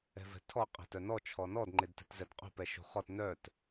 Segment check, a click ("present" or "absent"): present